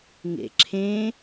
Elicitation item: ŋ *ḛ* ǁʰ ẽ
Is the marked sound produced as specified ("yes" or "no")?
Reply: yes